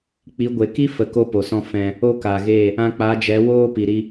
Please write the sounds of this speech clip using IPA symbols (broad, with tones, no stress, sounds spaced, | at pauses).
k͡p i˨˦ ɡʷ e˨ k i˦ f ə˧ k o˦ p o˨ s ɔ̃˦ f ɛ̃˧ | o˦ k a˨ ɣ e˦˨ | ã˧ k͡p a˨˦ d͡ʒ ɛ˨˦ w oː˦ p i˨ ɾ i˧